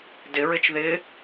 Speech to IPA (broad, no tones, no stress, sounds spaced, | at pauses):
d ɪ ɹ ɪ t͡ʃ ð ɪ